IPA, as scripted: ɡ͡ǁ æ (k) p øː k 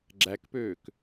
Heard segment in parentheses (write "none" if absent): k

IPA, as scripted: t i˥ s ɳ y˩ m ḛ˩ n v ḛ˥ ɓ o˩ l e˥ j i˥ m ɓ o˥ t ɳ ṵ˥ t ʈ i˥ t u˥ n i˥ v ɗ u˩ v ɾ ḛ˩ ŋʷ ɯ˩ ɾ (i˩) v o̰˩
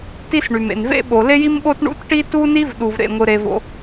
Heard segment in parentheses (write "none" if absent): e˩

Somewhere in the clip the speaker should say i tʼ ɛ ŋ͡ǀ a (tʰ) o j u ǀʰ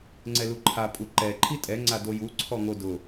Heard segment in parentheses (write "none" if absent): d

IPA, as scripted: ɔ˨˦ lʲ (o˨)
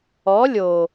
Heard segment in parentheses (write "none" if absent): o˨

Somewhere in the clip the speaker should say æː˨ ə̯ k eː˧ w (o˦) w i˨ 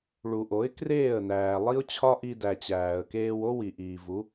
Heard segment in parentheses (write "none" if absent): o˦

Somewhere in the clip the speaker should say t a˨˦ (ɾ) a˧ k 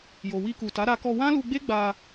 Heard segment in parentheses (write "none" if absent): ɾ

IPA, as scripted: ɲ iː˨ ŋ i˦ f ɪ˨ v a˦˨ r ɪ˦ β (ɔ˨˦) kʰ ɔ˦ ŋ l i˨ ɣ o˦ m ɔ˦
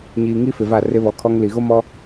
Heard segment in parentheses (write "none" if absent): ɔ˨˦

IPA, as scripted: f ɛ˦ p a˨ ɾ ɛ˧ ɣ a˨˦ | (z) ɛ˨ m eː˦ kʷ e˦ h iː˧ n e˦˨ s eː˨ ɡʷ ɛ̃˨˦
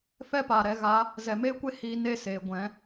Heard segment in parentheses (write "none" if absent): z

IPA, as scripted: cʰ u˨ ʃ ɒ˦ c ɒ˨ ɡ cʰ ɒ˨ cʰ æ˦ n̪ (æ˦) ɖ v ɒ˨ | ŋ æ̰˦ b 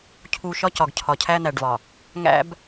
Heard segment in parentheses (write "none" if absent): æ˨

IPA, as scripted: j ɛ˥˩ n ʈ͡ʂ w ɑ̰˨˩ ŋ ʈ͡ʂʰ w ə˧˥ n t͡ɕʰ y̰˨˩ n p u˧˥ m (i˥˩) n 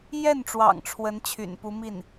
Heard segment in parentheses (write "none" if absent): i˥˩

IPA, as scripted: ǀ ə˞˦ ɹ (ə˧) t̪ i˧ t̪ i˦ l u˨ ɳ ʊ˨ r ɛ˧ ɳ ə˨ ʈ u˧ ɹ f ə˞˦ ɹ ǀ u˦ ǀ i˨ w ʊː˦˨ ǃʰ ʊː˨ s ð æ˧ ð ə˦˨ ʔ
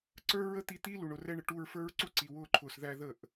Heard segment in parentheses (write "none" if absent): ə˦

